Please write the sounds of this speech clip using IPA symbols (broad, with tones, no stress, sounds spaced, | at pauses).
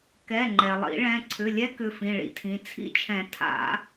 k ɛ˩˧˩ ŋ͡ǃ ɛ˩ lˠ ḭ˨˩˦ ɭ ɛ̃˩˧˩ ǀʰ ʏ˩˧˩ lʲ ɛ˦˥ k ʏ˩˧˩ f ĩ˩˧˩ ɭ ḭ˩ tʰ ĩ˩˧˩ t͡sʰ ḭ˦˥ t͡ʃʰ ɛ̃˨˩˦ tʰ a̰˨˩˦